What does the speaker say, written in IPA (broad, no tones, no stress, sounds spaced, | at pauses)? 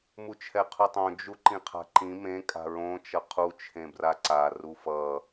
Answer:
m u t͡ʃʰ ɛ qʰ u tˤ õ d͡ʒ u ǃ ĩ qʰ a̤ ǃ ĩ m ẽ kʼ a̤ ɹ õ t͡ʃ ʌ qʰ u t͡ʃʰ ẽ b r a ǀ a r u f ʌ